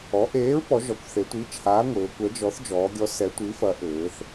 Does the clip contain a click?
no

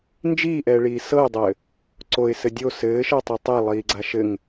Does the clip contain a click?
yes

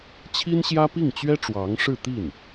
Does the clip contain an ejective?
no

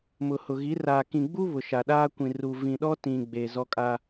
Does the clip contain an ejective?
yes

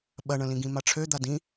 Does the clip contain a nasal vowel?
yes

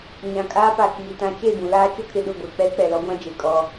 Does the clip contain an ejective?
yes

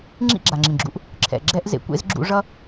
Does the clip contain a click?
yes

